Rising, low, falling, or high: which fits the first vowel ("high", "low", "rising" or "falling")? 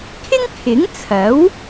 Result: high